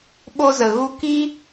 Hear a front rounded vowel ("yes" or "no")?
no